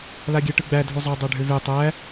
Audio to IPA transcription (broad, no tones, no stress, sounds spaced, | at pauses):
l a ɡʲ æ ʈ ɯ ɡ͡b æ dʱ o zˤ a dˤ a ɖʱ ø v e tˤ æ